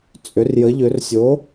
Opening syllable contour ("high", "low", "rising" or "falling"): rising